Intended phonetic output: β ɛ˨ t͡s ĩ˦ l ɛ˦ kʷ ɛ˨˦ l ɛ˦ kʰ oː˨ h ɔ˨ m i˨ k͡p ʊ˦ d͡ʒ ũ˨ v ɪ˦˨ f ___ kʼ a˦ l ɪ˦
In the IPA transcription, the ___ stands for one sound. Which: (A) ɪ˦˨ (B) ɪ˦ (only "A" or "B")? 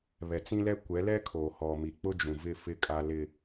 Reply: A